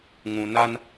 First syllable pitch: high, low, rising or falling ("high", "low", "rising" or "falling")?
low